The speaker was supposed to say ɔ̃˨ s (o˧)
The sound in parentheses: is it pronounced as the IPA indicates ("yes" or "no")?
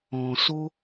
yes